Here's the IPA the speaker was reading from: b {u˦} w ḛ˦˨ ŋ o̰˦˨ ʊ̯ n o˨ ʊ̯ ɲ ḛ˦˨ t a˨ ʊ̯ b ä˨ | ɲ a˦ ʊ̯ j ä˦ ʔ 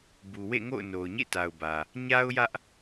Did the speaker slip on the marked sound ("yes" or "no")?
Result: yes